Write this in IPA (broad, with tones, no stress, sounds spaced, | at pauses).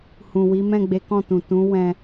h ũ˨ w i˨˦ m ɛ̃˦˨ ɡ͡b e˨˦ k ɔ̃˦˨ t ũ˨ t ũ˨˦ w ɛ̃˧